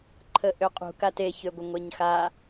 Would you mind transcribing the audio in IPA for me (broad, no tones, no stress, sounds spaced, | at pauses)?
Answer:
ǃʰ ə ʔ ø qʼ ṳ k a t e ç ø ɡʷ ə ŋʷ e ɲ x a